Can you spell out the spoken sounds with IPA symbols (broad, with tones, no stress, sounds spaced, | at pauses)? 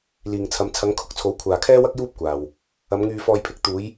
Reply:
l iː˨ ŋ t͡sʰ ɐ˨˧ m t͡sʰ ɐ˨˧ ŋ kʰ ʊ˥ k̚ t͡sʰ o˨˥ w kʷʰ aː˨ kʰ ɛː˥ w ɐ˥ k̚ j uː˥ p̚ kʷ aː˨ w | ɐ˨˧ m ŋ yː˧ f ɔː˧ j pʰ ɪ˧ k̚ t̪ uː˨˧ j